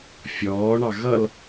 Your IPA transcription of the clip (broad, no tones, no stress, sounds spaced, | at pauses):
fʲ ɔː ɳ ɑ ɣ ʌ l